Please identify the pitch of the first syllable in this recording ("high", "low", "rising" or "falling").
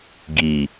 low